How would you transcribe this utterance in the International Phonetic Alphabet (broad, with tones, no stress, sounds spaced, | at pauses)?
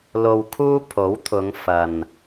l o˧ w kʰ uː˥ pʰ o˨˥ w t̪ʰ ʊ˨˧ ŋ f ɐ˨ n